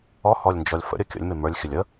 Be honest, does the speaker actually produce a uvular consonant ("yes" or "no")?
no